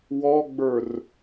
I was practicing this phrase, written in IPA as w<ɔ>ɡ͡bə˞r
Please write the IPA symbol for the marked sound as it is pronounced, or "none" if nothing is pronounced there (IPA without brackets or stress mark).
ɔ